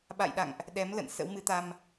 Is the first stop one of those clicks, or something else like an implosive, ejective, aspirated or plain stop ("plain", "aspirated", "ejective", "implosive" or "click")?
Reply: implosive